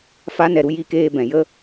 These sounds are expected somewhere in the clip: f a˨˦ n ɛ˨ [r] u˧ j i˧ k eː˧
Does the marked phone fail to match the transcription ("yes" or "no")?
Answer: yes